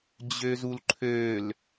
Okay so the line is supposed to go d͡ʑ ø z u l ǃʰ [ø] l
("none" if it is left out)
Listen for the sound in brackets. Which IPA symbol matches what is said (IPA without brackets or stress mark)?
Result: ø